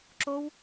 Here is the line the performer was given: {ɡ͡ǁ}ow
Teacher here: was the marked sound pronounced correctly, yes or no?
no